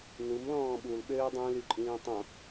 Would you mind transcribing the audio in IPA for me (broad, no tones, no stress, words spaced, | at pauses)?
numlɔ̃ː ɓulɓøː dˤũlyǃʼĩː tˤõ